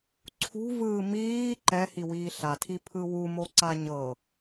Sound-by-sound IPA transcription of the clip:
ǀʰ ṳ v ɯː m iː ǃ ɛ h i w iː ɬ a tʰ i pʰ ɯ w u m o ǀ a ɲ ɤ

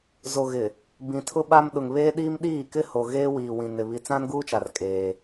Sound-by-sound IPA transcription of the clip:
z o˨ ɣ ɪ˨ | b ĩ˨ tʰ ʊ˦ ɓ a˦ m ɗ ʊ˨ ŋ β eː˦ ɗ iː˦ m ɗ iː˦˨ k ɪ˦ h o˨ ɣ eː˦ w iː˨ w ĩ˨ n ɪ˨ β i˨ t͡s ã˦ n ɡ uː˦ t͡ʃ a˨ r kʼ eː˦

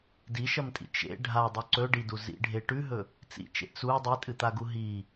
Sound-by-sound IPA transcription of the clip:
d i ʃ ɐ m tʼ ḭ t͡ʃ ḛ ɖʱ a dˤ u ǀ ɵ ɖ i d u z ḭ ɖʱ e ʈ ʉ ɦ ɵ | t͡s ḭ t͡ʃ ḛ t͡s u dˤ i tʼ ɨ t̪ a ɡ u ɦ i

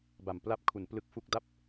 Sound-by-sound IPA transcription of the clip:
b a˨˩ m p l a˦˥ p̚ kʰ u˩˦ n p l ɯ˦˥ k̚ f u˥˩ k̚ d a˥˩ p̚

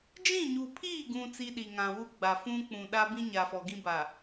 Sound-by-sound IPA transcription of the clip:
d͡ʒ ĩ˦˨ ɲ u˨ pʰ iː˦˨ ɡ ũ˨ t͡s i˦ ɗ i˨ ŋ ã˨ w u˦ ɡ͡b a˨ f ũ˦ k͡p ũ˨ ɗ a˦ b ĩ˦ ɲ a˨ f ɔ˨ ɡ ĩ˦ b a˨

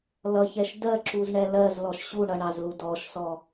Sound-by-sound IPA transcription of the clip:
l ʌ ç ɛ ʃ d ɜ ǁ u z ɳ ɛ l ɜ z l ɔ ʃ ɕ u ɳ ʌ ɳ ɑ z l u d ɔ ʃ s ɔ

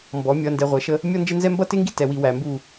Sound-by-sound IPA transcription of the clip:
m b ɔ˨˦ mʲ ʌ˨ n d ɛ˨ ʁʷ ɛ˨˦ ʃ ə˦ | mʲ ɔ˦ n d͡ʒ ɪ˦ n z ɛ˦ m b ʌ˦ t ɪ˦ ŋ ɡ i˦ t ɛ˨ w i˨ w æ˨ m b u˦˨

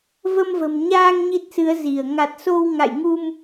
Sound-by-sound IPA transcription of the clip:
v ə˧ m v ə̤˨˩ m ɲ aː˧ ŋ ɲ i˦˥ t̚ s ɨ˨˦ ə̯ z i˧˩ ə̯ ŋ a˨˩ t̚ s o˧ w ŋ a̰˧˨ j ŋ u˧ m

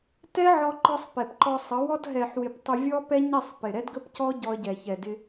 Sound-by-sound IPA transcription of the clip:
t ɛ˦ ʕ ɔ˧ ǃ ɔ˧ sˤ p ɛ˨ p ǃ ɔ˧ sˤ ə˨˦ w ɔ˦ d ɦ ɛ˨ ħ w ɪ˨ p tˤ ɪ˧ vʲ ɔ˦ p ɛ˦ ɲ ɛ˦˨ sˤ p ɪ˨ ɾ ɛ˦ d ɡ ə˦ p c ɔ˦ ɟ ɔ˧ ə̯ ɟ ɛ˨ ç ɛ˨ d ɪ˧

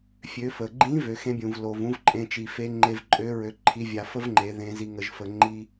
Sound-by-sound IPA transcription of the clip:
fʲ ø˩˧ f ə˩ ɡ͡ǃ ĩ˧˥ v ø˩˧ x ẽ˧˥ bʲ ũ˩ v l o˩ v ũ˥ v ǃʼ ẽ˧ t͡ʃ i˩ f e˧˥ ŋ͡ǃ e˧ v ǃʼ ø˧˥ ɹ ø˧ ǃʰ i˧˥ vʲ a˧ f ə˥ v ŋ͡ǃ e˩˧ ð ẽ˧˥ z i˧ ŋ ə˧ ʒ f ə˧ ŋ͡ǃ i˥

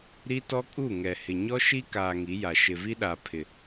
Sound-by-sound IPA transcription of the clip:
ɾ i˦ t ɔ˦ kʼ u˦˨ ŋ ɛ˨ h ɪ˨ ɲ ɔ˦ ʃ i˦ k aː˨ ŋ i˨˦ j a˨ ʃ ɪ˨ v i˦ ɗ a˨ pʰ ɪ˨

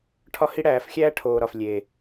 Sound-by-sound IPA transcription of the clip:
ʈʰ ɒ˧ h i˧ ɽ æː˨ f xʲ æː˦ ʈʰ oː˨ ɾ ɒ˨ f lʲ e˨

